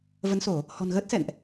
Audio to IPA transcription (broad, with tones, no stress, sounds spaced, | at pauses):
v ə˨˦ n s o˧˩˨ | h ɔ̤˨˩ n ɣ əː˦˥ t̚ s ɛ̰˧˨ n ʔ